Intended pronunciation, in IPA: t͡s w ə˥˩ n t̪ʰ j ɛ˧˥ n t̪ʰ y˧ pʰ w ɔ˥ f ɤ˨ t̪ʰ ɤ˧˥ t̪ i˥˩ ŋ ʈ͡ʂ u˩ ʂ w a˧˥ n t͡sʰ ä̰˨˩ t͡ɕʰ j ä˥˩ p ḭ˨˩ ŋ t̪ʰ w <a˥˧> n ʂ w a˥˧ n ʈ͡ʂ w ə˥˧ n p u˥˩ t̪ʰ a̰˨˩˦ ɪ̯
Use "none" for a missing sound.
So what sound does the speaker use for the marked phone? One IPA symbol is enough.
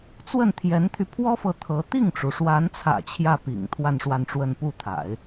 a˥˧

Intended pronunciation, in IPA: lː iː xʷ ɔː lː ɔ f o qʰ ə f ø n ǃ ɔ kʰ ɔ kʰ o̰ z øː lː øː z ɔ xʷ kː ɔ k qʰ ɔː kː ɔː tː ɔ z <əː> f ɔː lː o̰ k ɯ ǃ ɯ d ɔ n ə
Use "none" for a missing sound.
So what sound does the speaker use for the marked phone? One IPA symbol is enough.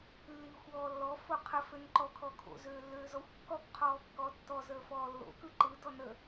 əː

